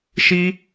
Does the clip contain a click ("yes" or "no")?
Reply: no